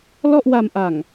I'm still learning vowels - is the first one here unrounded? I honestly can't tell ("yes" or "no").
no